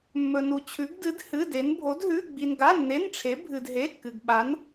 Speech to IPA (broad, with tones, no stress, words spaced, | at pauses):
mːɵ˧nu˧t͡ɕʰʉ˧˥ɡ dɨ˧˥dhɨ˧˥˧de˧˥n bʱo˧˥dɦʉ˧˥˧ɡ͡bi˧n ɡa˧˥˧nːe˧˥˧nʈ͡ʂʰe˧˥ bʱɨ˧dɦe˧˥˧kːɨ˧ɡ ɓa˧˥n